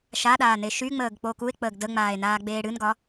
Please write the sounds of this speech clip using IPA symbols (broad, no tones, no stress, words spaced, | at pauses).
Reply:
ʃaɗaː neʃyŋ͡məːɡ k͡pokue̯k͡pəːɡ dəŋ͡maːe̯ naːɡ͡beːɽɨnɡɒ